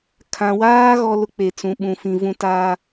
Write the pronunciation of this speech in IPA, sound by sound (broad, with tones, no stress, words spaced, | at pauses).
kʰã˨waː˦ ɣɔ˦lʊ˦ k͡pe˨t͡sũ˨ ɓũ˨fĩ˨vũ˨ taː˨